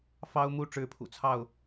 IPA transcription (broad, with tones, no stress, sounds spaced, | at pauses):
f ɑ˦ ʊ̯ m u˥˨ ʈ͡ʂ ɻ̩˥˨ pʰ ṵ˨˩ t͡sʰ ɑ˥˨ ʊ̯